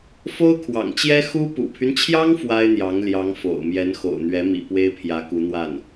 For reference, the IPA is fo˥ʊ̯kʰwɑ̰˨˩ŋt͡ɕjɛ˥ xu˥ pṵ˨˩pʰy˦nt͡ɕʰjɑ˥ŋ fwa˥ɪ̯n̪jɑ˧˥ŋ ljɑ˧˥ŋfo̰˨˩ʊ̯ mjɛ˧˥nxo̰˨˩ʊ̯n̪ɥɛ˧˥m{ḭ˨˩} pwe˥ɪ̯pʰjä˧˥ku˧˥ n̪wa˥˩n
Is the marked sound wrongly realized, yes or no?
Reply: no